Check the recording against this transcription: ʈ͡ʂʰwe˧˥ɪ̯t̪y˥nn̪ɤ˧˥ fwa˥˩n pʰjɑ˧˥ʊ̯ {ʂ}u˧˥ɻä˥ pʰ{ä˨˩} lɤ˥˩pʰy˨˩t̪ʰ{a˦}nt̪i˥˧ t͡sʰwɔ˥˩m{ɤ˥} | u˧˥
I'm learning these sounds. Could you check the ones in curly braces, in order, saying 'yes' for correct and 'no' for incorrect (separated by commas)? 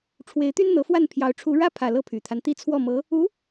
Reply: no, yes, yes, no